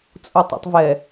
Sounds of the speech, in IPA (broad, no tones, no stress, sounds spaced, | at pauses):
t͡sʼ u tˤ ɛ̰ tˤ v ɛ